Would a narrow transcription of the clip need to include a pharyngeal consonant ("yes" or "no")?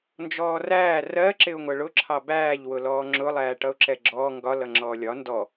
no